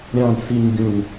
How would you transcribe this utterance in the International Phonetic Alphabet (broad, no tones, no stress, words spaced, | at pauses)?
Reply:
ɾʲɑ̃d siɲɡʲũɲ